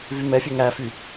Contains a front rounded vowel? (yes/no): yes